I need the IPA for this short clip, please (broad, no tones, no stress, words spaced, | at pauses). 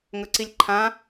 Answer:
ŋɵǀilʲǃʰã